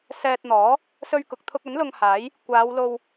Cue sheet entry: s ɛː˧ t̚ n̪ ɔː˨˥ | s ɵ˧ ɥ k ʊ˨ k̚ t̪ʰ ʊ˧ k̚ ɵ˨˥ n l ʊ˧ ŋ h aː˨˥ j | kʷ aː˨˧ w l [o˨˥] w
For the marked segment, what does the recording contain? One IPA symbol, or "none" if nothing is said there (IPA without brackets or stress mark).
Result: o˧